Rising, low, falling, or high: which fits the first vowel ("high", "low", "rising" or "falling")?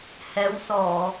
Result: rising